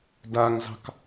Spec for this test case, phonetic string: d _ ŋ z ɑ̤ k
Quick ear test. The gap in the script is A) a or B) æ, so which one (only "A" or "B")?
A